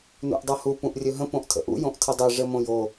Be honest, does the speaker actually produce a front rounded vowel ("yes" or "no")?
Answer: no